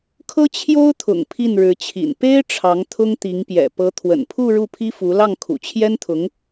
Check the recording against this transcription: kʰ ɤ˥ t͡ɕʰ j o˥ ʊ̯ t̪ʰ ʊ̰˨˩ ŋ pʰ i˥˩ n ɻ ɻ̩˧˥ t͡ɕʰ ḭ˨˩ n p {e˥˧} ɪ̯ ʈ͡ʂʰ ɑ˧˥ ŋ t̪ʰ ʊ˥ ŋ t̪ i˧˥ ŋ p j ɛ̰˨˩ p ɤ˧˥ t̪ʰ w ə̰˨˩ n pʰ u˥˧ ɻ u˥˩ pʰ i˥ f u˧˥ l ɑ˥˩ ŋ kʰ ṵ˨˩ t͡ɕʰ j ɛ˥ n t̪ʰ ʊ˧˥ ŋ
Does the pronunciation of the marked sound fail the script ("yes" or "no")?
yes